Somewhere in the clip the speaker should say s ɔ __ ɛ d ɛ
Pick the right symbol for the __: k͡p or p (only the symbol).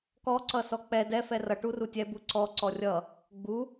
k͡p